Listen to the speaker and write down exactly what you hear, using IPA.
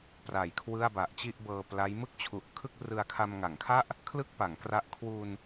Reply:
pra˨˩jkʰwɯ˥˩a̯ba˨˩ʔ t͡ɕi˥˩ʔbɤː˧pla˦˥j mɯ˥˩k̚t͡ɕʰu˨˩ʔkʰɯ˥˩k̚ rɯ˧a̯kʰa˧mŋa˩˦ŋkʰa˥˩ʔ | kʰlɯ˥˩k̚pa˩˦ŋkra˦˥ʔ kʰwu˧n

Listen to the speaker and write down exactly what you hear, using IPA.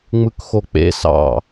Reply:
ŋ͡mɯkxok͡pḛ sɑ̰

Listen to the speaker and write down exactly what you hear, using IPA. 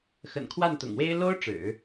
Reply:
xə̰˨˩nkʰwa˥˩nt̪ʊ̰˨˩ŋwe˥ɪ̯ lo˥ʊ̯ ʈ͡ʂɻ̩˨˩˦

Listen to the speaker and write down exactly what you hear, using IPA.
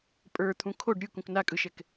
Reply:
pʼə˞t̪ʰũ kʰoɖ ɾʲɯkũk nakʼɯʃɛk

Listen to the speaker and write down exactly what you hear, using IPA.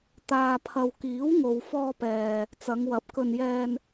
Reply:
t̪aː˨pʰɐ˨wkiː˨˥w ŋo˨wfɔː˧pɛː˨ | t͡sɐ˨˧ŋwɐ˨˥p̚ kɵ˧n jɛː˧n

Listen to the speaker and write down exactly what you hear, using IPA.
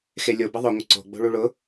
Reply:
xelʲo bəðˤʊ ŋʷəǀo̤ ɡ͡bo̤ɭuɭʊ

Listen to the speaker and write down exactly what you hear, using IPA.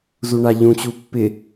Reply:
zuɳaʎũt͡ɕu pːɪ

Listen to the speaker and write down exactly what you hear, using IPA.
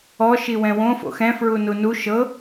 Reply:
ɔ ʃiwɛ̃wõ fo̰xɛ̃ fɹununu ʃɤ

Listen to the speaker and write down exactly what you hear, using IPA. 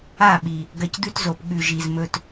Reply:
a˦˨ɓi˨ | ɡɐ˧cd̪ʉ˦tzo˨p ɠʉ˨ ʒi˨zmɵ˧t

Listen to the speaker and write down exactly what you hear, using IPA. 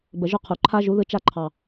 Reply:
bə˨ʒʊ˦˨qʰu˨ ǃʰa˦ʒu˨˦ðɯ˧ t͡ʃa˧ǃʰɑ˨

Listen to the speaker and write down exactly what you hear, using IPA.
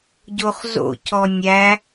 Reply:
ɟoχzo̰cɔ nʲæ

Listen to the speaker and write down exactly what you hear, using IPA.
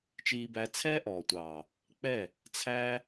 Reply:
t͡ʃiː˧bæ˧t͡sʰɛː˦ ʔɔː˨tʷɑː˨ | k͡pɛ˦˨ | t͡sʰæː˦

